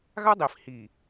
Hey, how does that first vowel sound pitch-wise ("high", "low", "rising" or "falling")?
high